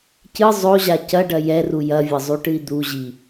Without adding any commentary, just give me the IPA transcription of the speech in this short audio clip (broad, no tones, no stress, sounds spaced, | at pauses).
c ɨ zˤ o ʑ a c ɐ ɖ ɐ j ɛ r u j ɐ vʲ ɐ zˤ u ʈ ɨ i̯ d̪ u ʑ i